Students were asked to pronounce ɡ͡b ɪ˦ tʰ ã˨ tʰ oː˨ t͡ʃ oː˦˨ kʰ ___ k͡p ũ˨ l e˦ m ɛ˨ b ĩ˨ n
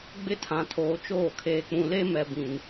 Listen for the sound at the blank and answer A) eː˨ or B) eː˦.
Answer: A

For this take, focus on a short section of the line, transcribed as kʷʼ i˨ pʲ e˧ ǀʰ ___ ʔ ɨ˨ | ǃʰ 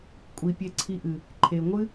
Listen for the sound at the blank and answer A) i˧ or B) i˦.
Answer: A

